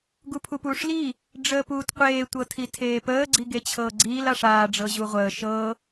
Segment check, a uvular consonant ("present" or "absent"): present